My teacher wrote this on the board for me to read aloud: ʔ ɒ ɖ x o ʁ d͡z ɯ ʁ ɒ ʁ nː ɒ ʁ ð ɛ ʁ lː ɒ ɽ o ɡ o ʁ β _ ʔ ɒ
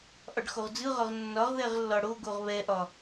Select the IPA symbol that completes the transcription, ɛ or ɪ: ɛ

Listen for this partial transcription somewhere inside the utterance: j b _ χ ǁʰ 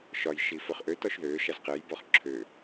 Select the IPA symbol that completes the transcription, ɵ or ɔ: ɔ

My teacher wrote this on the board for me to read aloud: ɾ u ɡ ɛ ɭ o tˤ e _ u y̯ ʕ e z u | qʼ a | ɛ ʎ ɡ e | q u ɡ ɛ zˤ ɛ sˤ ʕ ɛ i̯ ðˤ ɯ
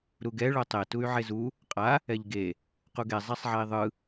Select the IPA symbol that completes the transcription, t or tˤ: t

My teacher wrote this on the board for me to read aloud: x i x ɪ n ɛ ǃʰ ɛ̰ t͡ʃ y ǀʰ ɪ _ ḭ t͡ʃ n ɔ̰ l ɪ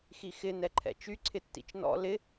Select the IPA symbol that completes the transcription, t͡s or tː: tː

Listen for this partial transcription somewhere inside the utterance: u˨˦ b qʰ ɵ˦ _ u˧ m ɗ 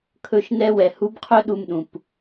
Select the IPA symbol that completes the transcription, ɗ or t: ɗ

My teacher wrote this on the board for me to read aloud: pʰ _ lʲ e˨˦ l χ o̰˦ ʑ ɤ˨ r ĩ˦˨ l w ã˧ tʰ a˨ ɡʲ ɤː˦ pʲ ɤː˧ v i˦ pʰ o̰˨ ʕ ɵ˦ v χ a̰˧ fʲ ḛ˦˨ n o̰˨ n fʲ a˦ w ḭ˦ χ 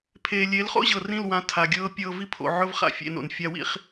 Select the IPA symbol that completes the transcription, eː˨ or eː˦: eː˨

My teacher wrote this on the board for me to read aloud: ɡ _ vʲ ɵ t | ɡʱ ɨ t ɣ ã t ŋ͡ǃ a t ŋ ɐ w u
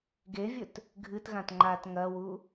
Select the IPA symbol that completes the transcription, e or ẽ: e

